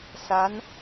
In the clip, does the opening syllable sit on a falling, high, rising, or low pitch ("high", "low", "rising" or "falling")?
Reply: rising